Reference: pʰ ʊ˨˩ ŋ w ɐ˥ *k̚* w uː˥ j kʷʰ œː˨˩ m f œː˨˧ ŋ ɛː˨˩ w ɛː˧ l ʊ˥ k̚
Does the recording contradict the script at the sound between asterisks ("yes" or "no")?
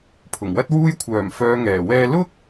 yes